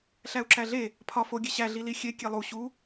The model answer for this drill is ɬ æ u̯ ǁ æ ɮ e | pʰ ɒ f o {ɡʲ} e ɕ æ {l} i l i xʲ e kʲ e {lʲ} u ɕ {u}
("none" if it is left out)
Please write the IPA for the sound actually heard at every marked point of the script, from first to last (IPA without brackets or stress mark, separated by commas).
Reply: ɡʲ, ɮ, lˠ, u